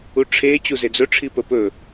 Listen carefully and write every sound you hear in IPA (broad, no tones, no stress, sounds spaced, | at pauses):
u ʈ͡ʂʰ e t͡ɕ u z e d͡z ɵ ʈ͡ʂʰ i p ə p ɵ